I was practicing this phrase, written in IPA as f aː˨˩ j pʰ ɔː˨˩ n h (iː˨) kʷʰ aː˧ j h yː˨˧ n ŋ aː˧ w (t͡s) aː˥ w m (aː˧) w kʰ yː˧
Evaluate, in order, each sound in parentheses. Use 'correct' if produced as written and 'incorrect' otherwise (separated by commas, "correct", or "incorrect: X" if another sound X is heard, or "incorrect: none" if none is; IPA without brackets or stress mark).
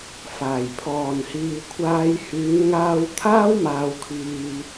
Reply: correct, incorrect: t̪ʰ, correct